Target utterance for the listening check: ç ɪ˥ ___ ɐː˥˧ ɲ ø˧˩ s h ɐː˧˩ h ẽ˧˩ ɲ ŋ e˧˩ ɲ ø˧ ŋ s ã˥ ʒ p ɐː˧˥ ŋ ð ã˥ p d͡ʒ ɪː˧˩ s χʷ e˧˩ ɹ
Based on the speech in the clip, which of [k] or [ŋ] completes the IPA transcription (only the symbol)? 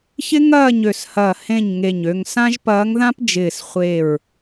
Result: ŋ